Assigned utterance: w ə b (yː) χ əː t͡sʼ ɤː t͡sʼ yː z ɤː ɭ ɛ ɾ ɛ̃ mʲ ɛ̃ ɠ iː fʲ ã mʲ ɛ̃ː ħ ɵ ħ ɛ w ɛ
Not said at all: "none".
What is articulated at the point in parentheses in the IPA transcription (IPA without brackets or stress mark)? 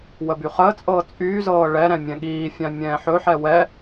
y